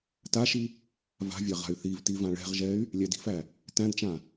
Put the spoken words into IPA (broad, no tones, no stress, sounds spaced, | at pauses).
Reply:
t a ʃ i | v a̤ vʲ a ʁ a̤ y̯ θ i v t i v ã ɭ ɛ̤ ʁ ʒ ɛ y̯ | lʲ æ d i̤ f æ | t æ̃ d t͡ʃ ã